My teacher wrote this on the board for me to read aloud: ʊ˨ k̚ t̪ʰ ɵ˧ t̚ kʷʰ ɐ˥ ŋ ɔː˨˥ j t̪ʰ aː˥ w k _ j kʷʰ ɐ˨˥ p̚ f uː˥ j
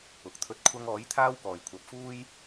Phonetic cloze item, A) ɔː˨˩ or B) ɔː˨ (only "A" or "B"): A